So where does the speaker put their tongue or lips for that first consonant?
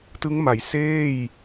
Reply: tongue tip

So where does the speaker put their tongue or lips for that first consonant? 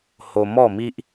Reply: throat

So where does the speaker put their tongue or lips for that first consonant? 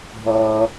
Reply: throat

